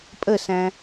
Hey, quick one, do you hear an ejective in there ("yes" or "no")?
yes